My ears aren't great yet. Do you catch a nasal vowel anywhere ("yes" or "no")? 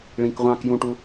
yes